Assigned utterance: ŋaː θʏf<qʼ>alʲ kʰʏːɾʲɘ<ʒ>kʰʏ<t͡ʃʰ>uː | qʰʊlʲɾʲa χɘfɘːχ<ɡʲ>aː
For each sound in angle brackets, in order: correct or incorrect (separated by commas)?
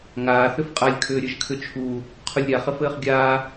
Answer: correct, correct, correct, correct